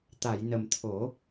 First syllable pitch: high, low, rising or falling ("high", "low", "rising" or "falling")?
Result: low